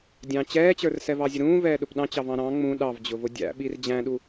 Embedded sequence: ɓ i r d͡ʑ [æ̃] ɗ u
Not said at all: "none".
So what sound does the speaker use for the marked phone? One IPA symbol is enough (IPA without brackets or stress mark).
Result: æ̃